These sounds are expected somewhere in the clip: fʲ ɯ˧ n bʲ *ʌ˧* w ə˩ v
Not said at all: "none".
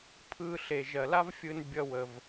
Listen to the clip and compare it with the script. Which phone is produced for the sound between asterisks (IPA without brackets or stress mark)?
ʌ˧